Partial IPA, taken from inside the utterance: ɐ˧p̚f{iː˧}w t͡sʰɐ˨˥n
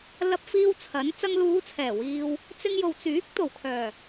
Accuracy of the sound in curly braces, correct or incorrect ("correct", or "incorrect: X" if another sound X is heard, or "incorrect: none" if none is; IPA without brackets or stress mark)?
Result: correct